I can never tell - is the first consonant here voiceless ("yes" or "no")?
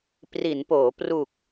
yes